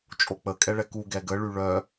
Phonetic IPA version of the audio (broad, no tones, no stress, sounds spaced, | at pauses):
t͡ʃʼ o k͡p ə kʼ ɛ ɭ ɛ k u ɡ ɛ ɡ ə ɭ y ɭ œ